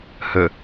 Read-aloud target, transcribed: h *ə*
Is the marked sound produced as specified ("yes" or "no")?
yes